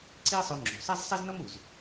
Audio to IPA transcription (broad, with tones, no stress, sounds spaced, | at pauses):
ǀ i˥ e̯ sˤ o˧ ŋ͡ǁ o̤˩ sˤ æ˥ z sˤ ɛ˥ z n ʌ˥ m u˩ z